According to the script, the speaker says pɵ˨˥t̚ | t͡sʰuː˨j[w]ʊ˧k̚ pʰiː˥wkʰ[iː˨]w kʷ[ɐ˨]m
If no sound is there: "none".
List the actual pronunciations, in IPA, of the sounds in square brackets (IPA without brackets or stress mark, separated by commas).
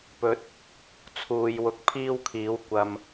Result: w, iː˨˥, ɐ˨